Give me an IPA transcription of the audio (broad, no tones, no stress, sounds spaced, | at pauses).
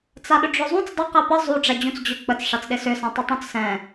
t͡s a ɗ ʏ ɖ͡ʐ ʏ zˤ ũ t͡s dˤ ɪ q ɛ p ə zˤ u ɖ͡ʐ ɛ d͡ʑ ũ t͡s d͡ʑ ʏ k͡p ə t͡s ʂ a t͡s ɗ ɪ s ʏ s ɛ̃ tˤ ɪ tˤ ũ t͡s s ɛ̃